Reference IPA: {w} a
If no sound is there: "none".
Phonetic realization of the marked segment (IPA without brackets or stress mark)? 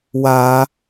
w